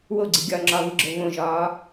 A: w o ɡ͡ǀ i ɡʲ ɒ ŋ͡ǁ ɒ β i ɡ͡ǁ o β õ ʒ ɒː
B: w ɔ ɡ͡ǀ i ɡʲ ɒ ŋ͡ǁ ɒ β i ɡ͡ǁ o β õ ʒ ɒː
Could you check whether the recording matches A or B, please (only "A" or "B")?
A